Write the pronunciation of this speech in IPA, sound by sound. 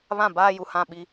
β ã˦˨ b aː˦ j u˨ h ã˦˨ ɓ i˦

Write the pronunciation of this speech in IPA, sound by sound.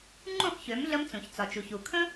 ŋ͡ǃ ũ˥˩ χ ç ø˩˥ m ɮ ə˧ m t͡s ũ˩ ç t͡s ɒ˩ t͡ʃ u˩ ç u˩ kʰ ə̃˥

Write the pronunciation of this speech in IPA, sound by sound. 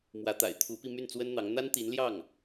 m w ä˧˥ t̪ a̰˨˩ ɪ̯ t̪ʰ u˧˥ p i˧ m y˥˩ n t͡s w ə˥ n n̪ ɑ˧˥ ŋ n̪ a˥ n t̪ i˧˥ n l j ɑ˥˩ ŋ

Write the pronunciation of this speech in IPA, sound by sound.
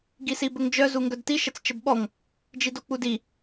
ɡ i s i b ə ŋ d͡ʒ œ z u ŋ ɡ œ d t i ʃ ə t͡s t͡ʃ ə b ɓ ɔ ŋ | d͡ʒ i d o k͡p u d i

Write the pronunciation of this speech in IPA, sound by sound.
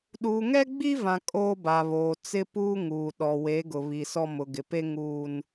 ɗ uː˨ ŋ ɛ˦ ɡ͡b i˦ v ã˨ kʼ oː˦ b a˨ β oː˨ t͡s ɪ˦ p uː˦ ŋ uː˨ ɗ ɔ˨ w e˨˦ ɡ ʊ˨ β i˨ s ɔ˦ m ʊ˨ ɡ ɪ˨ p e˦ ŋ uː˦ n

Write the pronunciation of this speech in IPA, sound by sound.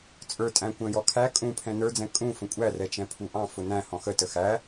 t͡sʼ ə˞ tʼ æ̃ kʷ ə̃ː j ɔ kʰ æ kʼ ũ pʰ ɛ̃ n ə˞ d͡z ɛ̃ kʼ ũ f ə̃ kʷʼ æ r ɛ t͡ʃ ɛ̃ pʰ u ʔ ɑ̃ f ʊ n æ̃ h ɔ̃ x ə t ə x æ

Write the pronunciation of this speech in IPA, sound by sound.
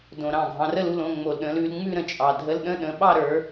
d õ˨˩ ɾ ɑ̃˥˩ ɡʱ ɑ̃˨˦ r ə˥˧ l u˧˥˧ l õ˥˧ ŋ͡m o˨˩ l ɗ ə̃˨˦ l ʉ˨˦ l ŋ͡m ʉ˥˧ ɾ ə̃˨˩ t͡ʃʼ ɑ˨˩ dʱ ə˧˥˧ l ɗ ə̃˥˧ ɗ ə̃˨˦ ɓ ɑ˥˧ ɾ ə˞˨˦

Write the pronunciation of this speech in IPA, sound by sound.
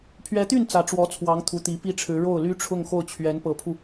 pʰ ɥ ɛ˧˥ t̪ y˥˩ n t͡s ä˧˥ ʈ͡ʂ w ɔ˧˥ t͡sʰ w ɑ˧˥ ŋ t̪ʰ u˧˥ t̪ i˧˥ p i˥ ʈ͡ʂʰ ɻ̩˧˥ ɻ o˥˩ ʊ̯ l y˥ ʈ͡ʂʰ ʊ˥˧ ŋ x o˥˩ ʊ̯ t͡ɕʰ ɥ ɛ˧˥ n p ɤ˧˥ pʰ u˧

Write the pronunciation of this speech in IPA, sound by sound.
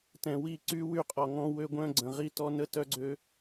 t ɛ̃˨ w i˦˨ ǀ y˦ w y˦ qʼ ɔ˨ ŋ ɔ̃˦ w ø˦ ɡʷ œ̃˦ ɡ͡ǀ ə̃˨ ʁ i˦ t ɔ˦ n ə˦ t œ˦ ɡ͡ǀ ø˦

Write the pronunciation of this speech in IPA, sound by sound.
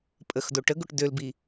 pʼ ə x d o ʈ ə ɡ o ʈ d ø l b i

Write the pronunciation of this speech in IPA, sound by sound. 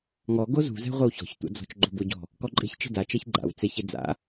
ŋ ɔ ɡ o z ṳ z ɛ̤ ʁʷ ɪ w ç ɔ̤ ç tʷ a̰ d͡z ɔ̤ t͡ʃ ɡ͡ǃ o b ʊ ɟ ɔ̤ | k ɔ ǃʼ e̤ ç t͡ʃ e̤ d a t͡ʃ ɛ ç ɡ͡ǃ a̰ w t͡s e ç e d͡z a̰

